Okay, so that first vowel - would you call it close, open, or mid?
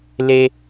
mid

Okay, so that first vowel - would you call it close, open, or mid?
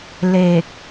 mid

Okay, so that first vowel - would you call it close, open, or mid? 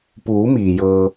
close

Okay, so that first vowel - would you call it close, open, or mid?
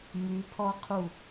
close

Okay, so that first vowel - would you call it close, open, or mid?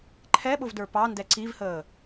mid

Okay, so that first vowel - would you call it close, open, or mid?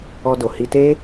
mid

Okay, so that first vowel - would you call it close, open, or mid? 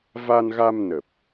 open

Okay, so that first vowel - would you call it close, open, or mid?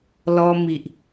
mid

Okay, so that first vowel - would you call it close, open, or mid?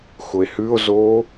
close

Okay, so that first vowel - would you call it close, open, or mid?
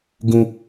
close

